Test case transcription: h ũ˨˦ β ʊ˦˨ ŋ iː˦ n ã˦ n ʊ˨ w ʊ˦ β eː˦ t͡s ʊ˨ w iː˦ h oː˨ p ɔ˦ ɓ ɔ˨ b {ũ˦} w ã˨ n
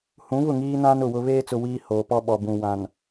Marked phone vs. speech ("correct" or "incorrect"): incorrect